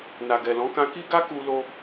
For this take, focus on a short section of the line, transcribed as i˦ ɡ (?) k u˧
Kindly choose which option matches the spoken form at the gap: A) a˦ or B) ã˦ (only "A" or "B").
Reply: A